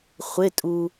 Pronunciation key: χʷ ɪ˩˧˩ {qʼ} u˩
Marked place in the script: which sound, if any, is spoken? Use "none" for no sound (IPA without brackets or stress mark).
tʼ